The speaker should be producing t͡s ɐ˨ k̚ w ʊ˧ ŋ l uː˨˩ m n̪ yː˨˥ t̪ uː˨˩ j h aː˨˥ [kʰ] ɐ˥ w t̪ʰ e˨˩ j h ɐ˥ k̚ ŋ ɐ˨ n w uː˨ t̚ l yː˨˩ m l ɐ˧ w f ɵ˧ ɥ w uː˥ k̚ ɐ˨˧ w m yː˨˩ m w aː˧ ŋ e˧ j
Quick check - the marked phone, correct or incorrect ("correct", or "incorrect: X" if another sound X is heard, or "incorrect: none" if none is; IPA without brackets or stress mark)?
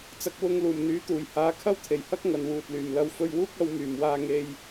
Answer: correct